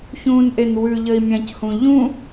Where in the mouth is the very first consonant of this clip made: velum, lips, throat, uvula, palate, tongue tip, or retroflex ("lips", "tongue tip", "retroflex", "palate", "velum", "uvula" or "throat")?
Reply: palate